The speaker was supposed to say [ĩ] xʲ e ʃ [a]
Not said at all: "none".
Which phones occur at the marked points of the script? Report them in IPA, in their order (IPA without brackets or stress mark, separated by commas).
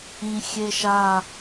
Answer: ĩ, a